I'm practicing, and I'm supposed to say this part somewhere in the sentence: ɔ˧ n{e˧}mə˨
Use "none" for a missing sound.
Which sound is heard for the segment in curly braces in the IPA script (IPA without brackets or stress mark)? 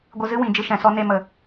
e˧